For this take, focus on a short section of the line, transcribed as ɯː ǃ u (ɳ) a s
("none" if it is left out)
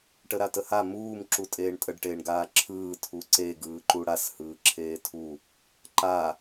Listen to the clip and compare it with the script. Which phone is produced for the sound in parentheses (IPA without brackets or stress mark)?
ɽ